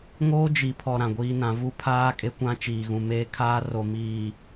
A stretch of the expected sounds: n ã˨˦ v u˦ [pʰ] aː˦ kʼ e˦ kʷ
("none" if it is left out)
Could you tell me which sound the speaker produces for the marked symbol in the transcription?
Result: pʰ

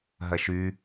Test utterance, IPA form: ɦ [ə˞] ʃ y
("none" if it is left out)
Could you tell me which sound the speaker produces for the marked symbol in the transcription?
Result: ɐ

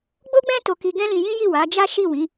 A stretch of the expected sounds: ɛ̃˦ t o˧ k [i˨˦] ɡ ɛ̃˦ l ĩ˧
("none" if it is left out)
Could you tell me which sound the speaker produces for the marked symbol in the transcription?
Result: i˧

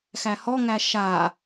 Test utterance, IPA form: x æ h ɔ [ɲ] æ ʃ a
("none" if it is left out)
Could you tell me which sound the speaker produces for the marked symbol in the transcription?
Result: ŋ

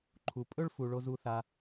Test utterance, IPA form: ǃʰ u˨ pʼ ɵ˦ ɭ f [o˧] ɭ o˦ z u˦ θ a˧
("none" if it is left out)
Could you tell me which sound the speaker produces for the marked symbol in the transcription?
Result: u˧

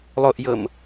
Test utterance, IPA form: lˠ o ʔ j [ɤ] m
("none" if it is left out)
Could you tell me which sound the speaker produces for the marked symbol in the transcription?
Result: ɤ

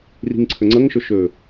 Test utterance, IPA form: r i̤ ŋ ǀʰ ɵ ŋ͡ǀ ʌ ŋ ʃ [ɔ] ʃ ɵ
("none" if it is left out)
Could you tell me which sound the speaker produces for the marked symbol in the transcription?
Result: ɵ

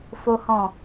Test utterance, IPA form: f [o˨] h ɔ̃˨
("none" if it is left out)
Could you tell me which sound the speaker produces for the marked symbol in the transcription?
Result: o˨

